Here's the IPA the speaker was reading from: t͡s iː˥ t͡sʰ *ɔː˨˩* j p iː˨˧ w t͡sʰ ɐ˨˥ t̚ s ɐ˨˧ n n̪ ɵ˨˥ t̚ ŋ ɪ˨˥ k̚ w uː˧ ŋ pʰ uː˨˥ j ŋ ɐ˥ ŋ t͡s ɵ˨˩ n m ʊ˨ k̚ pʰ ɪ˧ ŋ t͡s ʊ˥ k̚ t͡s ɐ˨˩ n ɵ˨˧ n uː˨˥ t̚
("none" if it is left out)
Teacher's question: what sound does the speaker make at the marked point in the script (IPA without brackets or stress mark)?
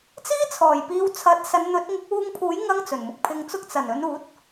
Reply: ɔː˨˩